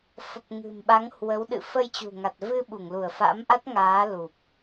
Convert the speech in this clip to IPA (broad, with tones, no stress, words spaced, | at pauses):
fə˨˩p̚ ŋɨ̤˨˩mɓa˨˦ŋhwə˨˦w ɗɨ̰˧˨fə˧jt͡ɕṳ˨˩ŋa˨˩t̚ vɨ˧ɓu˧˩ŋlu˧˩ə̯ fa̰˧˥mʔa˦˥t̚ŋaː˨˦ lu˨˩p̚